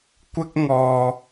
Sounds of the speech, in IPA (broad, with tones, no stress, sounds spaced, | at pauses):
kʷ ɪ˥ k̚ ŋ ɔː˧